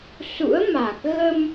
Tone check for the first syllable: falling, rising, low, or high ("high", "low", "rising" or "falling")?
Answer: rising